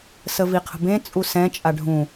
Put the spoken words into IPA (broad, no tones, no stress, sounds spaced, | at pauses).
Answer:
s ə v i qʰ ə̤ b ẽ t͡sʼ u s ɛ̃ t͡ʃʼ a ɖʱ ũ